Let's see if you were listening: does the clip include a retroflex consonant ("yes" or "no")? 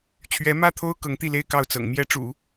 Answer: yes